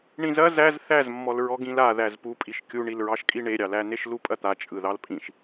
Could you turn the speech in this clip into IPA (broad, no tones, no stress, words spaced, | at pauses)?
ɳĩzɐ zæz θæzmːɔl ɹɔɡĩlaðæz pupʼiʃ kʲuɳilɹɑʃkʼi ɳeɾʲɑlæn̪eʃ lupʼɐt̪a t͡ʃʼɯðɑlpʼĩʃ